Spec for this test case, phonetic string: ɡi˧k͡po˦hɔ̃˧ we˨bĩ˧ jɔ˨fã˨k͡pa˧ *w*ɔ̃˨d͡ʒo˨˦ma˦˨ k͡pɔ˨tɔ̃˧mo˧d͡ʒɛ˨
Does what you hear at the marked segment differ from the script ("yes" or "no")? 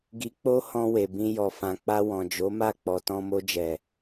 no